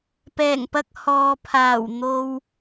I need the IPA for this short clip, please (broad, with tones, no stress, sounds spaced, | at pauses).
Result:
p ɛː˨˩ ŋ p ɐ˧ k̚ h ɔː˨ pʰ aː˨˩ w n̪ o˨ w